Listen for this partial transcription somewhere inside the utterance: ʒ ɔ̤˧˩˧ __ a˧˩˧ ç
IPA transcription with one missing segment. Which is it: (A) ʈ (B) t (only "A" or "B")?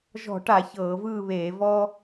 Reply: A